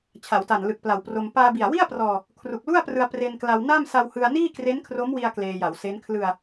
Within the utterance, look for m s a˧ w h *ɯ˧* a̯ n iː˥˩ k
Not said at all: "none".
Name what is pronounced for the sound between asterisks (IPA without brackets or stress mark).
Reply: ɯ˧